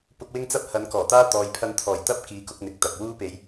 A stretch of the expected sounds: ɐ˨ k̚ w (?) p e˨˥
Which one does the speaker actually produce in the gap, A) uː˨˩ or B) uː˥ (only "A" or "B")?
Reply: B